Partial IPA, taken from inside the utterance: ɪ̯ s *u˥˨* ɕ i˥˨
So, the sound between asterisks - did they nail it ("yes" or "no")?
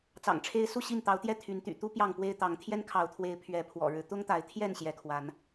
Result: yes